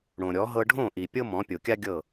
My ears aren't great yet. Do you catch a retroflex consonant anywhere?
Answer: yes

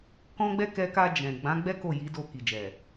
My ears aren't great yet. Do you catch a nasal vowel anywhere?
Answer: yes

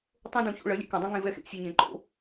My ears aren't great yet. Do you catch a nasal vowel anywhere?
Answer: yes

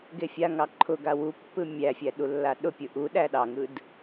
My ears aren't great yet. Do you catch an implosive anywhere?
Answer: yes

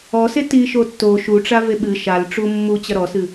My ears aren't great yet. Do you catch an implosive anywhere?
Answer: yes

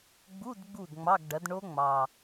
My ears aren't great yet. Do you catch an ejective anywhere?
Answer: no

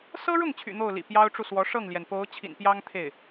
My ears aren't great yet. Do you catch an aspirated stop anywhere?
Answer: yes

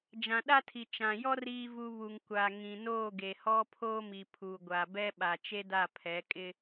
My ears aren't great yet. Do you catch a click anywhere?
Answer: no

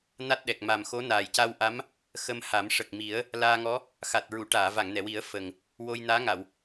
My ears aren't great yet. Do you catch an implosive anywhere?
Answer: yes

